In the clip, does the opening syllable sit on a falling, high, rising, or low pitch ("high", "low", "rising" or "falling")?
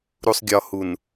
low